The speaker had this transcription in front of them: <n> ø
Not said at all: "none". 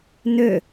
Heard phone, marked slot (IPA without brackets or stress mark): n